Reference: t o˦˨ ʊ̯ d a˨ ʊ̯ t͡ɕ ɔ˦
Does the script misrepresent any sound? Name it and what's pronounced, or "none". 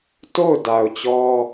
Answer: none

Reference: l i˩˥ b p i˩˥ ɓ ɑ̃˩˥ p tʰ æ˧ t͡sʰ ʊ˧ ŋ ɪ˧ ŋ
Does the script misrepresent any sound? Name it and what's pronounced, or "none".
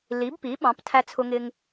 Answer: none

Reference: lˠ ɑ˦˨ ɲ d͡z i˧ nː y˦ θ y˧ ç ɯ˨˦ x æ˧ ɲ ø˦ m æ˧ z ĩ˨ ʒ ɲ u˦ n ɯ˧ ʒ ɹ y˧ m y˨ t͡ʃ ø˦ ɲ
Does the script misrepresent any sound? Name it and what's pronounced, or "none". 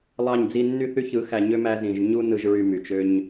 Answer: none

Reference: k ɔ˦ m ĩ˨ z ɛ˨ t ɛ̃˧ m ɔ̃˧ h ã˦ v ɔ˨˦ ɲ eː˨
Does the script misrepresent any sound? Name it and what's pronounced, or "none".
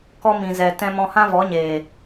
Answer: none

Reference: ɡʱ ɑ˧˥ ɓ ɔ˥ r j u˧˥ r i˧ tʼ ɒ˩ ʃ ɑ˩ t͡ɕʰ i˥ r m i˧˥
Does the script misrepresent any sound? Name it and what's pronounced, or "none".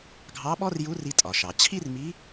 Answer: none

